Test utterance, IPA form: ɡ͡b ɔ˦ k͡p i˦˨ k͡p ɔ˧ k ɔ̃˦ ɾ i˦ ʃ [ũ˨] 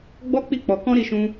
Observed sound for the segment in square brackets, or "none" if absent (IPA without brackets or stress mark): ũ˦